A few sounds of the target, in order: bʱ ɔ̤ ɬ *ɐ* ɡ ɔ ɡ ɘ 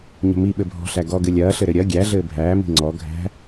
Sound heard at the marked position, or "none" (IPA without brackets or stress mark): æ